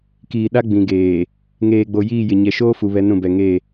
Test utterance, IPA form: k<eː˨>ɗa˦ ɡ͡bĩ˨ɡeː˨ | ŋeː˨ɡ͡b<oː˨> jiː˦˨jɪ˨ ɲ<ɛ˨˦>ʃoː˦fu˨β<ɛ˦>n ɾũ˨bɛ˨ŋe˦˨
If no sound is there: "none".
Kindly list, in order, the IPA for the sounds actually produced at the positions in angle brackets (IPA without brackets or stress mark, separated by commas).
iː˨, o˨, ɛ˨, ɛ˨˦